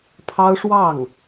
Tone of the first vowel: high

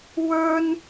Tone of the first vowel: high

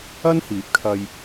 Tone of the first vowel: high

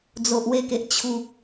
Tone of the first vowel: low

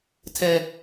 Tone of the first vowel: high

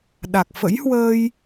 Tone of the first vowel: low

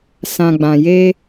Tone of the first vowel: low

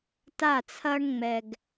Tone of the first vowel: falling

